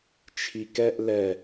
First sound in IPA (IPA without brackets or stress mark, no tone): t͡ʃʰ